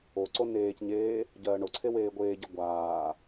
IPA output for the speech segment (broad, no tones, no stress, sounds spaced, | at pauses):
o ǀ o n eː c ɲ eː | ɟ ɜː ɳ o ǀʰ e w eː ɡʷ eː ɟ e ɡʷ aː